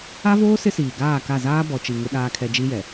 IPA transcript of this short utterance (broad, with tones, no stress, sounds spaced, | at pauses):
a˦ v oː˦ s ɪ˦ s iː˨ ɡ aː˦˨ k a˦˨ z aː˦ b ɔ˨ t͡ʃ i˨ ŋ ɪ˦ ɗ aː˦ kʰ ɛ˦ d͡ʒ i˦ j ɛ˨